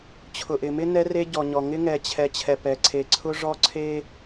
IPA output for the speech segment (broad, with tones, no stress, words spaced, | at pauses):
t͡ɕʰʊ˨ʔɪ˨mɪ˦ nɛ˦re˦ ɟɔ˨ɲɔ˨ ŋɪ˦ŋɛ˨t͡ɕʰɛ˨ t͡ɕʰɛ˨pɛ˨ǀʰe˨ ǀʰʊ˦ʐɔ˦ ǀʰe˦